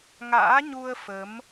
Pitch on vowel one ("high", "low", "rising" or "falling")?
rising